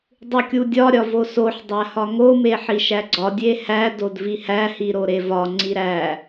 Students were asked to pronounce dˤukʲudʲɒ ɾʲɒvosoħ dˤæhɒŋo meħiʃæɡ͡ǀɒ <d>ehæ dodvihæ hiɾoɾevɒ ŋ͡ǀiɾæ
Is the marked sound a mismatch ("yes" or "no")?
yes